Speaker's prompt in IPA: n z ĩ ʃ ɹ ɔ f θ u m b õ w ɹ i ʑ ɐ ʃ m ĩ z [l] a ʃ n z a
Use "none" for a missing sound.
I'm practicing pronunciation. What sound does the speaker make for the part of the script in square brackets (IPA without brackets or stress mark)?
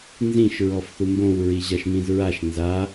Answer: ɹ